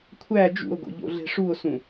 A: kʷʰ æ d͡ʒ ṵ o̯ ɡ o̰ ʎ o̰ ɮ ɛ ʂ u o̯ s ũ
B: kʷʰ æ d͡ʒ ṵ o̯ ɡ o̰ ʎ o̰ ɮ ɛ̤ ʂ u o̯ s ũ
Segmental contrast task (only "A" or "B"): B